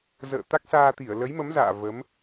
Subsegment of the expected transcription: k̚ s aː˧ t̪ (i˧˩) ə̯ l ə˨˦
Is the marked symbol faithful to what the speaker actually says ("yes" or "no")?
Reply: yes